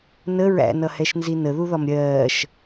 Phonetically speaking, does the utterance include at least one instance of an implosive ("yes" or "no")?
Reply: no